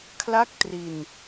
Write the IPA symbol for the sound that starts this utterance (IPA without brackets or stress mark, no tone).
kʰ